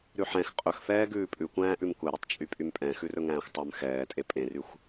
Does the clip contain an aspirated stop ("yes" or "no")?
no